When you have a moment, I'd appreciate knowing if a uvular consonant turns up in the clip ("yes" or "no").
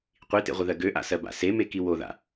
yes